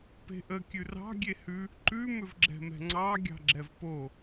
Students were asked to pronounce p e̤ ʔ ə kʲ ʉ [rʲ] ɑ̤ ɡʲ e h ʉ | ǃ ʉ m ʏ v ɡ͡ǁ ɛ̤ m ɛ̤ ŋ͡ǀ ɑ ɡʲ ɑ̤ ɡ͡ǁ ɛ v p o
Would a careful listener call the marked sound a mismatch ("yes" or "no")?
yes